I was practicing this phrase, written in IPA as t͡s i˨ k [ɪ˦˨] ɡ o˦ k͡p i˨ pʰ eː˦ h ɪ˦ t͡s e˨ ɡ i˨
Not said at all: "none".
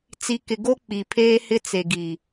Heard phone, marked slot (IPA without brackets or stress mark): ɪ˨